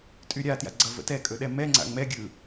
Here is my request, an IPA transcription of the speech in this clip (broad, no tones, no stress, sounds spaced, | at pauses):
tʼ y ɾʲ a t j a̰ ɡ͡ǀ ʌ v ə̰ t ɛ kʼ ɵ ɗ ɛ m ɛ ŋ͡ǀ a̰ ŋ͡m ɛ ɡʲ ɯ